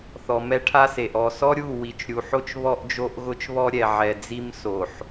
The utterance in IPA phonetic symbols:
θ ɔ˨ m ɛ˦ ʈʰ a˦ s e˨ ʔ ɔ˦˨ s ɔ˦ ɾʲ u˦˨ w i˨ t͡ʃ ɾʲ u˨ ħ o˦ t͡ʃ β ɔ˦ ʔ d͡ʒ o˦ ʔ ɣ ʊ˦ t͡ʃ β ɔ˦ ɾʲ ɛ˨ ʕ ɛ˨ d͡z i˦ m s o˨ ħ

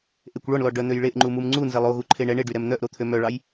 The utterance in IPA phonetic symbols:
ʔ e kʷ ɭ ɔ ɳ l ɔ ɖ œ n̪ ø j ɭ e ʔ ŋ͡ǃ u m u m ŋ͡ǀ u n z e lˠ o ɣ u ǃʰ e ɳ ɛ ɳ e ɖ y ɾ ɛ m n̪ œ ʔ ɾ o t̪ʰ ø m œ ɭ ɑ j

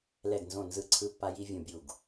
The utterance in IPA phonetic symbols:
l ɛ˦˨ ɡ n z õ˦˨ n z ɯ˦˨ ǀʰ ɯ˥ pː a˥ j i˥ vʲ ũ˦˨ bʲ u˦˨ ɡ

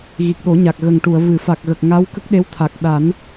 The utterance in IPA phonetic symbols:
ɣ i˨˩ k̚ ɗ o˨˩˦ ɲ a˨˩ k̚ ɣ ə˨˩ ŋ ʈ u˨˩˨ ə̯ v ɨ˨˩˨ f a˨˩ k̚ ɣ ə˨˩ k̚ ŋ a˧˥ w k ə˦˥ k̚ ɗ e˧˥ w t̪ʰ a˨˩ k̚ ɗ a˨˩˦ n

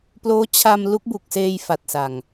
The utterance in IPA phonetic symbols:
p l oː˦˥ t͡ɕʰ a˧ m l u˦˥ k̚ b u˨˩ k̚ s eː˧ j f a˨˩ t̚ s a˨˩ ŋ

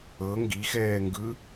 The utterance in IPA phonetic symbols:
ɤ ŋ ɡ i x ɛː ŋ ɡ ɯ

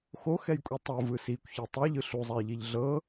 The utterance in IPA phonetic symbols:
x o x ɛ j kʷʼ i tˤ u v ɯ s i kʷ ç i tˤ ɛ ʎ ɯ ɬ u zˤ a j ʎ i ʎ ɮ ɤ

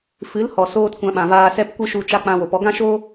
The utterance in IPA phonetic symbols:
f ɨ˨˦ l h ɔ˨ s oː˦ t kʷ ã˧ ɓ ã˨ v aː˧ s ɛ˦ p kʷ ɨ˦ ʃ u˧ t͡ʃ a˧ k͡p ã˧ w o˨ p ɔ˧ ɡ ã˦ ʃ oː˦

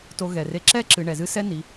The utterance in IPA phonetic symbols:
t o˧ ɣ ɛ˩ r e˧ ǁ ɛ˥ ǁ ɨ˩˧ ɳ ɛ˩ z ɨ˥ s ɛ˥ n i˩˧

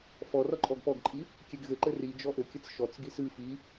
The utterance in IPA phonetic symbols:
f ɔ r ɔ ǃʼ ɔ ɡ p ɔ ɡ ǃʼ i | kʲ e ɡ ɣ ɘ ǃ ɘ r i d͡ʒ ɔ ʔ ɘ kʲ ɘ t͡s ʃ ɔ t͡s ɡ i s ɨ f i

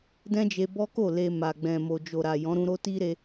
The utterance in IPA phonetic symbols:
d ɛ̃˦ d͡ʒ e˧ b ɔ˦ k o˦˨ l e˧ m a˨ ɡ͡b ɛ̃˨ m o˨ d͡ʒ o˨ ɾ a˨ j ɔ̃˨˦ ɾ ũ˧ ɾ o˦ t i˦ ɾ e˧

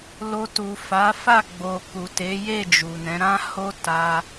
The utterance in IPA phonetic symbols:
l o˧ t u˨ f a˨˦ f a˦˨ ɡ͡b o˨ k u˨ t e˨˦ j e˦˨ d͡ʒ u˨ n ɛ̃˨˦ ɾ ã˦ h o˦ t a˧

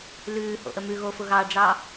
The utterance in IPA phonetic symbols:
l ʉː h o̰ ʔ ə m ʉ ɣ o f ʊ ɣ ɑ ɖ͡ʐ ɑ

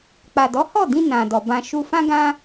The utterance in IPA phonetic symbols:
k͡p a˨ d ɔ˨˦ h ɔ˦˨ d ĩ˧ n ã˨ d ɔ˨ b ã˧ ʃ u˧ f ã˦ ɡ ã˦

